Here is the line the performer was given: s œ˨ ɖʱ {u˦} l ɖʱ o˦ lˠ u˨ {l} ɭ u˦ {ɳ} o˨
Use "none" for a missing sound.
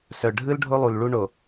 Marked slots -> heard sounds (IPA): ɯ˦, l, ɳ

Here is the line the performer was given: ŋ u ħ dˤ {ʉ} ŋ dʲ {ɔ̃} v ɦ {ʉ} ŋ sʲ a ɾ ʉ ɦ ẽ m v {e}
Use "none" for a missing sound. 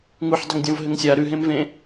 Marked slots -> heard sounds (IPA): ɘ, ɔ̃, ɘ, ẽ

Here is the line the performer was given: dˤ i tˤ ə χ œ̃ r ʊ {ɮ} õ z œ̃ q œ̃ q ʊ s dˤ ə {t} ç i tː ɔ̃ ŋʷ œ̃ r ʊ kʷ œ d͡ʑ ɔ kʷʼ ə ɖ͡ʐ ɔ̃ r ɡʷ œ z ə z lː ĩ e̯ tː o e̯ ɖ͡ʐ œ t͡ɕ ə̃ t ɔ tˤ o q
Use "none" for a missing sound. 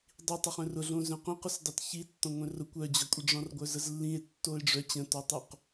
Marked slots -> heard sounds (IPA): ɮ, t

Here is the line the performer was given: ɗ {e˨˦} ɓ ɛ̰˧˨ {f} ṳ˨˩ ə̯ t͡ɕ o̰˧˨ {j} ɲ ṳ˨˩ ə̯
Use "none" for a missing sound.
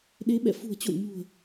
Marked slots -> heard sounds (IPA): e˨˦, f, j

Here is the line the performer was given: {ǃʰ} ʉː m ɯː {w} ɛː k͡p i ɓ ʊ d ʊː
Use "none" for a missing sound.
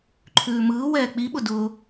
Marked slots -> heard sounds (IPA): ǃʰ, w

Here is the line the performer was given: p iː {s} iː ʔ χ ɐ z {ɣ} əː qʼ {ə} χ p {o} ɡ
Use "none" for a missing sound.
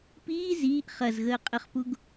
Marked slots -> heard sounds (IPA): z, ɣ, ə, u

